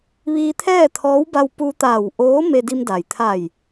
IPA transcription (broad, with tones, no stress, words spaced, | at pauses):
ʋiː˧t̪ʰɛː˥˨t̪ʰɔː˧˥wba˧w pu˧t̪aː˧˩w ʔoː˧˥ me˧di˧mda˩j t̪ʰa˧˩j